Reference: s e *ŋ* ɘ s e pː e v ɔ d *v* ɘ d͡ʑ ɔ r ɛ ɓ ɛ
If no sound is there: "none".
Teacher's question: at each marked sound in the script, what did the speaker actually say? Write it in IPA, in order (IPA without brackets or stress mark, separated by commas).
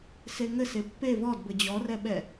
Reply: ŋ, b